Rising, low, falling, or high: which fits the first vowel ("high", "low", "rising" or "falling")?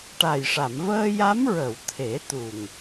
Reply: low